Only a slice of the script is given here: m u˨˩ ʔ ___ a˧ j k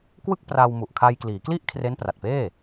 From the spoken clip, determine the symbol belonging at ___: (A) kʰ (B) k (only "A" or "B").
A